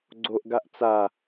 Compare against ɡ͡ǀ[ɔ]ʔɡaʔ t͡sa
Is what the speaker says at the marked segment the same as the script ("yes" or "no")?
no